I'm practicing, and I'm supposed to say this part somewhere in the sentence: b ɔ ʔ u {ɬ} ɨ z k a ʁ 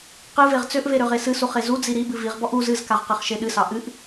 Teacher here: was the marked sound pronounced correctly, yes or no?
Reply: no